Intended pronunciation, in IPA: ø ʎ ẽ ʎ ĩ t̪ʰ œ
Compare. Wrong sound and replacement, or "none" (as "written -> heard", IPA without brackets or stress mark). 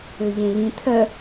none